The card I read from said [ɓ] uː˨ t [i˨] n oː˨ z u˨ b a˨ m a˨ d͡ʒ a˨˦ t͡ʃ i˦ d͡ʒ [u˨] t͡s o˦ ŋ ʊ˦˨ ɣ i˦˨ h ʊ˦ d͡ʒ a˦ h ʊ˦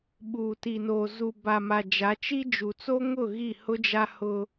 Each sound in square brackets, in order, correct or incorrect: correct, correct, correct

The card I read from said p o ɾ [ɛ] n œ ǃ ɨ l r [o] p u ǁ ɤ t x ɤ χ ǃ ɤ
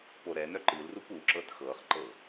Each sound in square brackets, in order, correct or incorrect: correct, incorrect: u

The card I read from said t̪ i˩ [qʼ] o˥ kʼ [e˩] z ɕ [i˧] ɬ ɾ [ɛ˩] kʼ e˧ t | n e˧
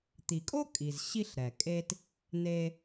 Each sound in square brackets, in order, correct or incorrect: incorrect: kʼ, incorrect: i˩, correct, correct

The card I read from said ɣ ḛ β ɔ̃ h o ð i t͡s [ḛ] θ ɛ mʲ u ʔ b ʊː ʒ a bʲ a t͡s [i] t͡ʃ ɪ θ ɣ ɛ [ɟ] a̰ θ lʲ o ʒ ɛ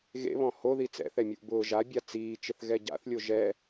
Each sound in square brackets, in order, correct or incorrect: incorrect: ɛ̰, incorrect: iː, correct

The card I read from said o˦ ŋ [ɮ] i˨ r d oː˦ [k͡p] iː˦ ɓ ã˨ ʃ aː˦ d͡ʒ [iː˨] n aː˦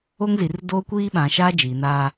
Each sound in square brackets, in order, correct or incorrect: incorrect: z, incorrect: kʷ, correct

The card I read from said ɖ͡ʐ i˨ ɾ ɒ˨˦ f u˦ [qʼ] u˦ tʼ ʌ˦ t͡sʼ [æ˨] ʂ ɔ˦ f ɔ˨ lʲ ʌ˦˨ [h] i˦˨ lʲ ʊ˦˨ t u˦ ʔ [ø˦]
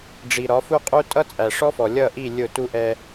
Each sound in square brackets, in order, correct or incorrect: correct, correct, incorrect: ʔ, incorrect: ɛ˦

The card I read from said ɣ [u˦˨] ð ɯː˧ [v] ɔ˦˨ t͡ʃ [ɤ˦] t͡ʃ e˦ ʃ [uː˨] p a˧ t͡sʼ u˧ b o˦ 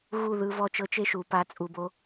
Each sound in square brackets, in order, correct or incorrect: correct, correct, correct, correct

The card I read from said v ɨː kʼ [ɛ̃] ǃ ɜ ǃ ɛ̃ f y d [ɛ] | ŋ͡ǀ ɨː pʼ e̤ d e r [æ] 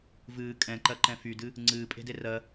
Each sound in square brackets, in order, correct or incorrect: correct, incorrect: ɨ, incorrect: ɜ

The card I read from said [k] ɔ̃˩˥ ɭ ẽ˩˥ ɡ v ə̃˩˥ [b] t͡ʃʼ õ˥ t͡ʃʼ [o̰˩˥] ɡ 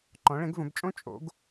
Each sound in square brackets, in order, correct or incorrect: incorrect: ǃ, correct, correct

